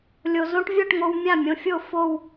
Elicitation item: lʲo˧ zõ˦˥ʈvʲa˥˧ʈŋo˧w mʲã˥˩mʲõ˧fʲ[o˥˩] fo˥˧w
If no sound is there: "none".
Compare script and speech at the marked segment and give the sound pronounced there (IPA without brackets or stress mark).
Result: o˥˩